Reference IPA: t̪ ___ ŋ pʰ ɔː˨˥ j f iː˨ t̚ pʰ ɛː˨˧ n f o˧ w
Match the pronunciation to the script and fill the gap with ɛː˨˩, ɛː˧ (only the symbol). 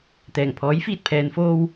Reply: ɛː˨˩